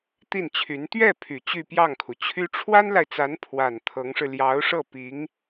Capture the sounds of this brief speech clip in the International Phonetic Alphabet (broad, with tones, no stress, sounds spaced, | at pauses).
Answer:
t̪ i˥˩ n t͡ɕʰ y˧˥ n t̪ ɥ ɛ˥˩ pʰ y˨˩ t͡ɕ y˥˧ p j ɑ˥˩ ŋ kʰ u˩ t͡ɕʰ y˥ ʈ͡ʂʰ w a˥ n l a˨ ɪ̯ t͡s a˧˥ n pʰ w a˨˩ n t̪ʰ ɤ˧˥ ŋ ʂ ɻ̩˧ l j ɑ˧˥ ʊ̯ ʂ ɤ˥˩ p i˧˥ ŋ